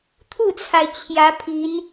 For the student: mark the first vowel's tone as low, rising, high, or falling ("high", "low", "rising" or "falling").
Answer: falling